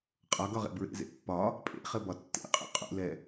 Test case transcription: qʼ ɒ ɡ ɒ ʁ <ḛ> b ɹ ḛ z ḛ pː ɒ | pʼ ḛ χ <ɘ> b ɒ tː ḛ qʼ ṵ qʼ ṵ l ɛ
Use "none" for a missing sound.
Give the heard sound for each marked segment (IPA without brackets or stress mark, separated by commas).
ḛ, ɘ